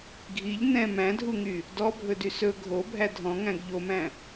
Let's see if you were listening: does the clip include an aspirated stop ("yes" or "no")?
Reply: no